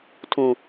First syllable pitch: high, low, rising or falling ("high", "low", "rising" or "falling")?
low